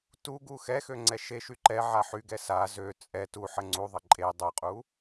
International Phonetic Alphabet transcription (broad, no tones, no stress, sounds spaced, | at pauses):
t u ɡ u x ɛ x ø ŋ͡ǀ ɛ ʃ e ʃ y ǃ ɛ ʕ a ħ y ɡ ɛ s a z ø t͡sʼ ɛ t u ħ ə ŋ͡ǀ u ðˤ ə ǃʼ e dˤ u qʼ u